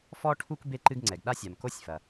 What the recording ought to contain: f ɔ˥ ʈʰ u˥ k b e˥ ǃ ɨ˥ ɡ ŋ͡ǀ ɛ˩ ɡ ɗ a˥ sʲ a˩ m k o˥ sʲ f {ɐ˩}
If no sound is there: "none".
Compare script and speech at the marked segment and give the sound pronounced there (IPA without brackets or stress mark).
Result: ɐ˩